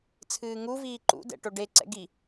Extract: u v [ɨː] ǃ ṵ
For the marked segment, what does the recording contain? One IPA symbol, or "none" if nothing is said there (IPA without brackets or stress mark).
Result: iː